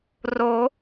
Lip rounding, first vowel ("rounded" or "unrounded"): rounded